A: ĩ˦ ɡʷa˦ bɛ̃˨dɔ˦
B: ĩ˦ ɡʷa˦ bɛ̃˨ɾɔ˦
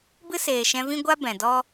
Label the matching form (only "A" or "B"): A